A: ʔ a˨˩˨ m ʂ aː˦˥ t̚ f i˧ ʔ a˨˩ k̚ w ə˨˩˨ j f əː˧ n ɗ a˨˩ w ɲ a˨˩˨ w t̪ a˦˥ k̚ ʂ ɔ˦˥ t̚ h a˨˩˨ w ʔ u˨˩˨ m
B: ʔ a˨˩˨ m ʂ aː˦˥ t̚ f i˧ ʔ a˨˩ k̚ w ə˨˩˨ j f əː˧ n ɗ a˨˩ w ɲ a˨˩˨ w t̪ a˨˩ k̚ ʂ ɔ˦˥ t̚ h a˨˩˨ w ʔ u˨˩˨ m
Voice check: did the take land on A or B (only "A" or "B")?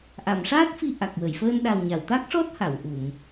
A